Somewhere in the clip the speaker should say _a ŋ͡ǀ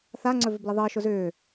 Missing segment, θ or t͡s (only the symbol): θ